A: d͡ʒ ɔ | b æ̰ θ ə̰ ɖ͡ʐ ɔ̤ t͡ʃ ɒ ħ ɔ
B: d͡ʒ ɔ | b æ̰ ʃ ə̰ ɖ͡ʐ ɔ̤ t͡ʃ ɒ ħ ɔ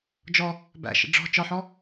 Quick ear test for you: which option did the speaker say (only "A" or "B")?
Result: B